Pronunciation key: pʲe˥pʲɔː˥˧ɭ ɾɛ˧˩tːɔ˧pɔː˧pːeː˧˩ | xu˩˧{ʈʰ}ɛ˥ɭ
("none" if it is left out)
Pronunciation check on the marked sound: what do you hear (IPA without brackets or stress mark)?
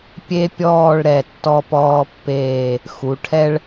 ʈʰ